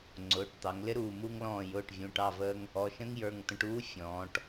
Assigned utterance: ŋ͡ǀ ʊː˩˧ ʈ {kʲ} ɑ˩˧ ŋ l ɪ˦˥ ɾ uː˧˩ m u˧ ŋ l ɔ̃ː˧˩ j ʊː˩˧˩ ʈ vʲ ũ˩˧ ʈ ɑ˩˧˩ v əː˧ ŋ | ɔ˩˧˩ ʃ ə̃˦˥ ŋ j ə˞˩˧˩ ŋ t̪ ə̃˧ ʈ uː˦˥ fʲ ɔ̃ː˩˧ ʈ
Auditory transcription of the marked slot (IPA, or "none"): t̪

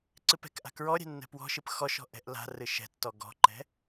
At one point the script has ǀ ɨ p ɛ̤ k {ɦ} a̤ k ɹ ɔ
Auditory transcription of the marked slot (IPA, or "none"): ʔ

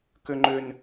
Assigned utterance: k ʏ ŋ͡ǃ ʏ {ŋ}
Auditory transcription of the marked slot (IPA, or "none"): n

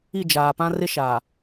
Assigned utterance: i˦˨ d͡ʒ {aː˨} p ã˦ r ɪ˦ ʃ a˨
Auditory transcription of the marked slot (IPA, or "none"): aː˨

